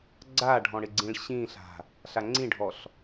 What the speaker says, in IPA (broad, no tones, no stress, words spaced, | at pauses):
ɡ͡ǀaɖʱɔ̃ ɽɪɡ͡ǀĩɭɕĩɬa̤ | ɬaŋ͡ǀĩɖʱɔɬ